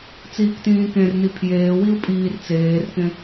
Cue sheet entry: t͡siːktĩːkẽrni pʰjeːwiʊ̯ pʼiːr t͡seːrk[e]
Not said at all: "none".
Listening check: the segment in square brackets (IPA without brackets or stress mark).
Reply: ẽ